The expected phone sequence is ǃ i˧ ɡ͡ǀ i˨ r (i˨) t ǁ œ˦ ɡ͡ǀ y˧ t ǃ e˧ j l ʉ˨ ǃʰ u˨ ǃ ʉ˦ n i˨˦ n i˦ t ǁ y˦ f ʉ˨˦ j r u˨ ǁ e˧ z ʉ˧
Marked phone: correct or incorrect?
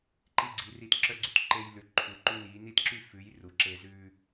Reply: incorrect